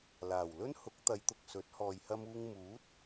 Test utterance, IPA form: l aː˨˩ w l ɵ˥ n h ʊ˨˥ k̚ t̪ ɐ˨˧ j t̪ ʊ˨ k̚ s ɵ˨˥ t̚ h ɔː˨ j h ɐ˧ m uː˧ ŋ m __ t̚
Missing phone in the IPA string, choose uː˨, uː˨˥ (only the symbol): uː˨˥